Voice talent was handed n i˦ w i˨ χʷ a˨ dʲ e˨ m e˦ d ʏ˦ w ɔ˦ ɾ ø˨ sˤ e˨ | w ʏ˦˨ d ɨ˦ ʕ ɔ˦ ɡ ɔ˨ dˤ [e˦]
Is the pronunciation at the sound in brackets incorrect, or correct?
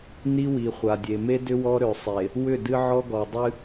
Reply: incorrect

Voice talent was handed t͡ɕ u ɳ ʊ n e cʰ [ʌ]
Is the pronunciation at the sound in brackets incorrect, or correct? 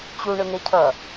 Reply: correct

